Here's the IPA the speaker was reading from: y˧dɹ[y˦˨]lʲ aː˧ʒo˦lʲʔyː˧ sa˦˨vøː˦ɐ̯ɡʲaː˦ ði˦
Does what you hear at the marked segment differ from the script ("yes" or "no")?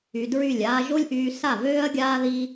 no